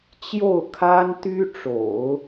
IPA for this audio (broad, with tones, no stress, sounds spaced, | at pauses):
t͡ɕ j o˥˩ ʊ̯ kʰ a˥ n t̪ y˥ ʈ͡ʂ o̰˨˩˦ ʊ̯